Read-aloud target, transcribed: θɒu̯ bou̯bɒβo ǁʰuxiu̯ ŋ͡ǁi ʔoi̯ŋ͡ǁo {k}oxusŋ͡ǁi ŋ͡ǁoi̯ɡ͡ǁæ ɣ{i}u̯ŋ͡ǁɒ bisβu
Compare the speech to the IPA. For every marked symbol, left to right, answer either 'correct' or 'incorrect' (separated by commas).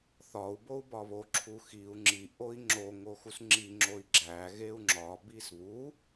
incorrect, incorrect